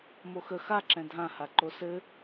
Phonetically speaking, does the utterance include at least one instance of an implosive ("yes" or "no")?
no